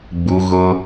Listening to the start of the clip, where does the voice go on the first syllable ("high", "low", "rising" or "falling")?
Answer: high